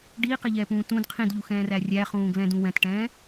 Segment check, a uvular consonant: present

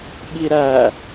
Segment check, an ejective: absent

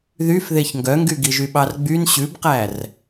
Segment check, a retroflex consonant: absent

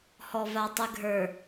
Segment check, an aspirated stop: absent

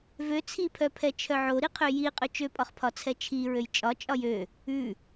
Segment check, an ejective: present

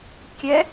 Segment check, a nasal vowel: absent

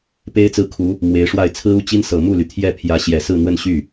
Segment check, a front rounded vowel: present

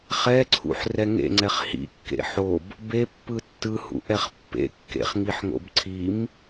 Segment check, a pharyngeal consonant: present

